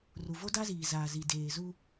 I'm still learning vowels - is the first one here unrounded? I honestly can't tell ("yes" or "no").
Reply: no